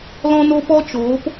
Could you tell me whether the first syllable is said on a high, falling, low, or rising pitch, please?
high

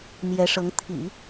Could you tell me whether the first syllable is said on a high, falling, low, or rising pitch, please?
rising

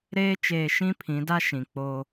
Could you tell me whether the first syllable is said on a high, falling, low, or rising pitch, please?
high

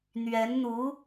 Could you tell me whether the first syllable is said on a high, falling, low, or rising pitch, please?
rising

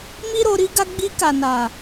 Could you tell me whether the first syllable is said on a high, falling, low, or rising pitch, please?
high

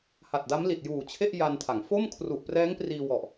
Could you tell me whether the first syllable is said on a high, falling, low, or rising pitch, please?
low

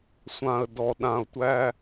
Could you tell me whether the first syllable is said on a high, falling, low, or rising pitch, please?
low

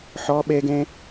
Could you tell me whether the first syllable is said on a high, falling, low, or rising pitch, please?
high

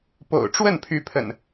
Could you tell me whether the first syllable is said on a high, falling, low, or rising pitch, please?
low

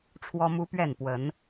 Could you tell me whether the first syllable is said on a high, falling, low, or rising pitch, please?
high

